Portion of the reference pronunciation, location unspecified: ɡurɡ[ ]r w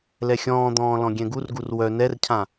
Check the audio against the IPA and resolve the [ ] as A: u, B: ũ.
A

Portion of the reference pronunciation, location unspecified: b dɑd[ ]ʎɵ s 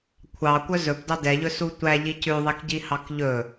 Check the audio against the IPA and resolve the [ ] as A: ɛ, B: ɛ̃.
A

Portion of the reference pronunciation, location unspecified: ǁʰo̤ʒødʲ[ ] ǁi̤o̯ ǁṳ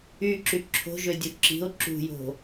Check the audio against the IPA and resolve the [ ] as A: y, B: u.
B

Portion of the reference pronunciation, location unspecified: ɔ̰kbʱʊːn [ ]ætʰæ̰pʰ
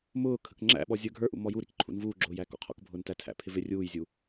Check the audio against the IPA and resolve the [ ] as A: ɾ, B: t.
B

